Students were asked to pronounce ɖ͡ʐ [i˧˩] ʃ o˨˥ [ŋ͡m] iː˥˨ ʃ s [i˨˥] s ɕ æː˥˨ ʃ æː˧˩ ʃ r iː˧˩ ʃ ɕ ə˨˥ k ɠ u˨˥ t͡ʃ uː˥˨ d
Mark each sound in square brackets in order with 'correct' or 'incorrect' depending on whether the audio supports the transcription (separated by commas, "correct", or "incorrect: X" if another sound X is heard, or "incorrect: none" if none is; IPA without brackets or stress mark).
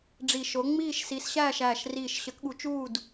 correct, correct, correct